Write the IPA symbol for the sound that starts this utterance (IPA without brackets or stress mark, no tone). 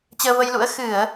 t͡ɕ